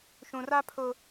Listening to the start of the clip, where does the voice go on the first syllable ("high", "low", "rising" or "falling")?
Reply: low